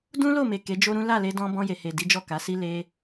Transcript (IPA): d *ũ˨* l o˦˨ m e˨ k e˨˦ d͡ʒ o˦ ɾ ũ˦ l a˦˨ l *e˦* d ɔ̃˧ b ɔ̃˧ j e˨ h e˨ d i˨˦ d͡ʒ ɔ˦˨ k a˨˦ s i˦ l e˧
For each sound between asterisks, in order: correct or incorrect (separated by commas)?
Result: incorrect, incorrect